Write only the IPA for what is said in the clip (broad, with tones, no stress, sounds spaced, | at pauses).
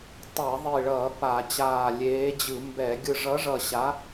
tˤ ɛː˧˩˧ ðˤ i˧˩ ɭ ʌː˧˩˧ p a˧˩˧ t͡ɕ aː˧˩ lʲ eː˨˥ d͡ʑ ɯ˧˩˧ m b ɛ˧˩˧ ɡʲ ɯ˧˩ ʐ ʌː˨˥ ʐ ʌː˧˩ ɕ a˨˥